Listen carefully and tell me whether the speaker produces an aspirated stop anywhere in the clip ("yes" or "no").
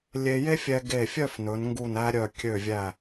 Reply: no